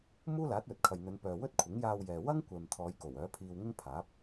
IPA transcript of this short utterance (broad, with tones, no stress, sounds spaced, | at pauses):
m uː˥ l aː˨˥ t̚ w ɵ˨ t̚ kʰ ɐ˨ j n̪ ɵ˨˧ n p œː˨ w ɵ˥ t̚ kʷʰ ɪ˨˥ ŋ j aː˧ w j ɛː˨ w ɐ˥ ŋ kʷ ɛː˨ m t̪ʰ ɔː˨˧ j k o˨˩ w œː˨˥ pʰ iː˧ w ŋ ɪ˥ ŋ pʰ aː˨˥ p̚